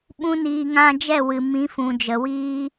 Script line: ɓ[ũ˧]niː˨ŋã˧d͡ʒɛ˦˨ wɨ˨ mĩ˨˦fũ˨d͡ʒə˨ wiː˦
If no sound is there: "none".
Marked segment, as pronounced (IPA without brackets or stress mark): ũ˧